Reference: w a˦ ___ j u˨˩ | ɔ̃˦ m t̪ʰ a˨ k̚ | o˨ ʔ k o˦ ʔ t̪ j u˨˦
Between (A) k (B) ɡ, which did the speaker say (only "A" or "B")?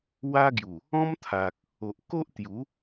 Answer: B